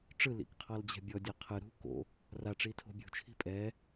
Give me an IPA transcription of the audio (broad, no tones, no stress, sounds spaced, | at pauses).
ʈ͡ʂ ɯ l ḭ k qʰ ɔ l d͡ʑ ɛ̤ bʲ ɔ dʲ a qʰ ɯ ɾ ṳ k o̰ | r a ʈ͡ʂ i tʰ o̤ bʲ ṳ t͡ʃʰ i̤ pʼ ɛ